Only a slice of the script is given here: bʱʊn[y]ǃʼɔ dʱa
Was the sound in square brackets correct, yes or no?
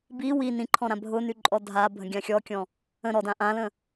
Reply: yes